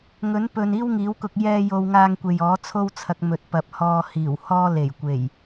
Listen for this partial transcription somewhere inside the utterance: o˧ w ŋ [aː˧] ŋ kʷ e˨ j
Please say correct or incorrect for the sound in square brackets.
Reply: correct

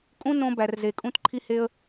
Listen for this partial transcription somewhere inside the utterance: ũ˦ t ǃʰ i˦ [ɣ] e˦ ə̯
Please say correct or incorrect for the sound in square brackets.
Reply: incorrect: h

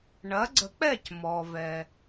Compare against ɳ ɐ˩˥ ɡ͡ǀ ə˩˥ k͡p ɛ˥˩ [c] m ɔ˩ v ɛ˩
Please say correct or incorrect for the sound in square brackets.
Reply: correct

